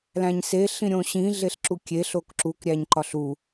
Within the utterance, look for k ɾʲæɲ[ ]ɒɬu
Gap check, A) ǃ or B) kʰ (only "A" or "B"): A